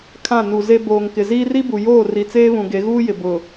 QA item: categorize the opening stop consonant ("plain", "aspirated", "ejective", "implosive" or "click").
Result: aspirated